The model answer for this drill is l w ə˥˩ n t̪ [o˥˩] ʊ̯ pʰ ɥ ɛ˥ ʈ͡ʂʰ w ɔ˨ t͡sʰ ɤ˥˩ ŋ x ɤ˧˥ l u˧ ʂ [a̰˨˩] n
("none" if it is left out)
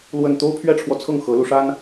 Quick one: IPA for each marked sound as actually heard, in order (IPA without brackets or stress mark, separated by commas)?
o˥, a˥